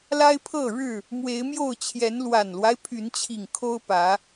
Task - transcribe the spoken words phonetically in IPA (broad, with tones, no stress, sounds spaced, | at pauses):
l a˦ ɪ̯ pʰ ɤ˥˨ ɻ ɻ̩˥˨ | m w e˨˦ ɪ̯ m j o˥˨ ʊ̯ t͡ɕʰ j ɛ˨˦ n l w a˨˩ n l w a˦ ɪ̯ pʰ y˨˦ n t͡ɕʰ i˨˩ ŋ kʰ o˦ ʊ̯ p ä˨˦